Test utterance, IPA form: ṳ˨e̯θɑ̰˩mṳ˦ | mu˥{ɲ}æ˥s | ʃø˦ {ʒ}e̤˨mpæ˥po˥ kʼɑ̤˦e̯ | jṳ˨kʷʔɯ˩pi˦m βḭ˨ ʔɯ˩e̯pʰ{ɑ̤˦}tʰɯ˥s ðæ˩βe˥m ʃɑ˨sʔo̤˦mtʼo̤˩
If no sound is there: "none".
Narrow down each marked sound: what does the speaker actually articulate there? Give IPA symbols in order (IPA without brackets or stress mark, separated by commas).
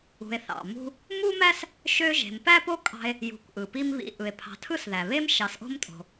m, ʒ, ɑ̤˨